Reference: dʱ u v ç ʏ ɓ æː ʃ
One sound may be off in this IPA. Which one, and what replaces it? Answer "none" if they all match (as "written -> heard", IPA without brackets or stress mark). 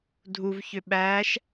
none